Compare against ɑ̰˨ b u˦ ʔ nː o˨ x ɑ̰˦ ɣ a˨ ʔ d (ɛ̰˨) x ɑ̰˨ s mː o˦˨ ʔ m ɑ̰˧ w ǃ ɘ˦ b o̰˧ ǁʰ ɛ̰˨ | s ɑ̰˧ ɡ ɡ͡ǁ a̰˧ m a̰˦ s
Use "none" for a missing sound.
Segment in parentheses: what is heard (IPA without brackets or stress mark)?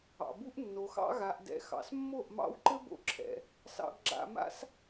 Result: ɛ̰˨